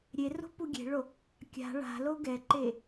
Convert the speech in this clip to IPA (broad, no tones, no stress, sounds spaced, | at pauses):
ɾʲ e r o̤ p u ɡʲ e̤ ɭ o | kʲ a̤ ɭ a̤ l o ɡ ɛ ǃ e